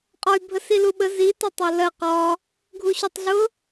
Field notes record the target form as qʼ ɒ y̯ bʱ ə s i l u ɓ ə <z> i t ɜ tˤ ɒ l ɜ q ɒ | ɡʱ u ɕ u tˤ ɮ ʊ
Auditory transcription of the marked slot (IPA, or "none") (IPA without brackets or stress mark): z